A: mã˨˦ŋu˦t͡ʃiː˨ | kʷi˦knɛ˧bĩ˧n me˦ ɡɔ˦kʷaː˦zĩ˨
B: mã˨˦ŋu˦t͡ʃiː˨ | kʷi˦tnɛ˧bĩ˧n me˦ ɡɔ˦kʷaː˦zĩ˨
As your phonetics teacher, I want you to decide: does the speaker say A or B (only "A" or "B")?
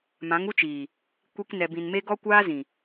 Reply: A